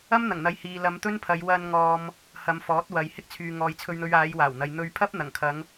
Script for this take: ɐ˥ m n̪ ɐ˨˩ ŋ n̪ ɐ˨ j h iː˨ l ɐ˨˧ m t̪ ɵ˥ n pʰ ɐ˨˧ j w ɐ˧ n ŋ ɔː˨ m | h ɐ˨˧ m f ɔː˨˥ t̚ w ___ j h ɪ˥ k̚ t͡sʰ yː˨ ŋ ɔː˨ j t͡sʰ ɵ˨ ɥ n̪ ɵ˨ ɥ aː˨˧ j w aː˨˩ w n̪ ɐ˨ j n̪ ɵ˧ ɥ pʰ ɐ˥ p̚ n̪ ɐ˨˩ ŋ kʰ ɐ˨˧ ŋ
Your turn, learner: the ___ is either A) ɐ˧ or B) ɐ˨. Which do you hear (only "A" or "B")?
B